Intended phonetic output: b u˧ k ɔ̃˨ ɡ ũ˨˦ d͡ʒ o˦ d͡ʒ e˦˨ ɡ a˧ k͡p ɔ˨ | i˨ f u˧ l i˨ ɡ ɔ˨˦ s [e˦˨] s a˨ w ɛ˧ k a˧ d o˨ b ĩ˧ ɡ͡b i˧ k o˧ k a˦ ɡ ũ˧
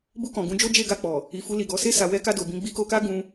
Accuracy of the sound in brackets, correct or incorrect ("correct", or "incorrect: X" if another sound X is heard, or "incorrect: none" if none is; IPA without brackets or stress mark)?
correct